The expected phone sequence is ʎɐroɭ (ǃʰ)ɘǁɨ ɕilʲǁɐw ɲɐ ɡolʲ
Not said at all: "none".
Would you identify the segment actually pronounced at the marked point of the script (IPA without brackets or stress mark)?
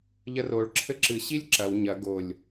ǁʰ